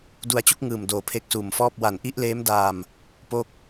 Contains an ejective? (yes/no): no